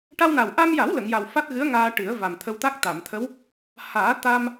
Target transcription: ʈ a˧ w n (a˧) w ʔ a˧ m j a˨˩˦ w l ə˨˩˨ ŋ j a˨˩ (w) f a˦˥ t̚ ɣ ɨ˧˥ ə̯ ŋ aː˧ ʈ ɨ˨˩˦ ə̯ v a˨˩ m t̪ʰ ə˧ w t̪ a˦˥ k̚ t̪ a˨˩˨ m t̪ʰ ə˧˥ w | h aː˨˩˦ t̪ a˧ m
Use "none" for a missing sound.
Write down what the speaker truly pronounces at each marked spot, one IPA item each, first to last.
a˨˩, w

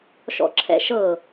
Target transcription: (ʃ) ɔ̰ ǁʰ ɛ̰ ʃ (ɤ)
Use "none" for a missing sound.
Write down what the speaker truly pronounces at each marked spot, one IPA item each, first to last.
ʃ, ɤ

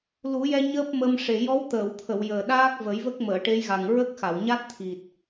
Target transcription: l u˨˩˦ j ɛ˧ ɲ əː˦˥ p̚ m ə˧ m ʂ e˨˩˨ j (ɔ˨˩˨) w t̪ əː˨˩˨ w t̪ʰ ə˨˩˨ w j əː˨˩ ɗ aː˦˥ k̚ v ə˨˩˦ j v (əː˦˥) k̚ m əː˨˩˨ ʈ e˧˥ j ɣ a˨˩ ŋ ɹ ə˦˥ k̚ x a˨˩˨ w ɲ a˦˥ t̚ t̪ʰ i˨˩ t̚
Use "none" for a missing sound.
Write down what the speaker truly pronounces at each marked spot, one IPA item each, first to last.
ɔ˧˥, ə˦˥

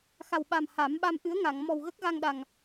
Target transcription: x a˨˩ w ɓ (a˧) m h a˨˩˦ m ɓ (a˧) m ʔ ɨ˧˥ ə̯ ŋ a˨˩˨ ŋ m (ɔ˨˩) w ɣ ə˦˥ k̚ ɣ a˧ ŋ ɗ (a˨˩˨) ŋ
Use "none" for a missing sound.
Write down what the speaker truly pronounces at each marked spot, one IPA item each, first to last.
a˨˩, a˧, ɔ˨˩, a˨˩

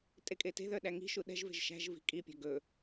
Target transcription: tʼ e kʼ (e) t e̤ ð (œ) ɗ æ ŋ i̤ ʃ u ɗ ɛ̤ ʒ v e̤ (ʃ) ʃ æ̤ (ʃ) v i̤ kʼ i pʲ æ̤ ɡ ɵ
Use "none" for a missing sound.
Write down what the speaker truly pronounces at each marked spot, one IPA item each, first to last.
e, œ, ʒ, ʒ

